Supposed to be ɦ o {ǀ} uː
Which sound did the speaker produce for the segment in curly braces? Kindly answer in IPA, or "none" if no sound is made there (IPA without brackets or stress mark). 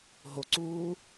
ǀ